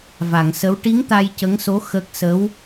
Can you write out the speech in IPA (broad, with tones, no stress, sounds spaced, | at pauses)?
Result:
v a˨˩˨ ŋ s ə˧˥ w ʈ i˧˥ ŋ t̪ a˧ j c ə˧˥ ŋ s o˧˥ x ə˦˥ k̚ s ə˧˥ w